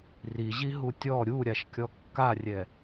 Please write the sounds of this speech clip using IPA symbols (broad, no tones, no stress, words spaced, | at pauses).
ri ʑiɦutʲɔ ɾʲu ɾʲaʃkʲɔkːarʲɛ